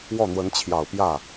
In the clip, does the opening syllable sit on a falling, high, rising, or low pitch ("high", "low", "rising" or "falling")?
falling